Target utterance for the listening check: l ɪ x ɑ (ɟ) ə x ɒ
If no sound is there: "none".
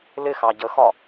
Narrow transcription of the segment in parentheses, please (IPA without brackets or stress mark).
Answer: ɟ